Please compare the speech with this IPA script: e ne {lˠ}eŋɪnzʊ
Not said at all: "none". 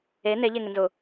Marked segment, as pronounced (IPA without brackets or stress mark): ʎ